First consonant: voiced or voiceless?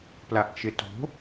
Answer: voiceless